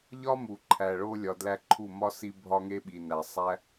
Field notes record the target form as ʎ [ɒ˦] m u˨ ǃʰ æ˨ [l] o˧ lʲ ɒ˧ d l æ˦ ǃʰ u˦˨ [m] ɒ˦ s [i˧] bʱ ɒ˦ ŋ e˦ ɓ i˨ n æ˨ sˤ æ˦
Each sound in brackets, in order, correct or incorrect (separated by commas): correct, incorrect, correct, correct